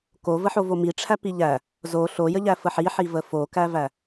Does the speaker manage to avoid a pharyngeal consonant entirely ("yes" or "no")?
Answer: no